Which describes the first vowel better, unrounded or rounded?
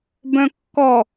rounded